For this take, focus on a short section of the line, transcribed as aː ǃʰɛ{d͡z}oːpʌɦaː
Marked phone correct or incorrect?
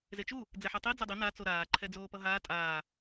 correct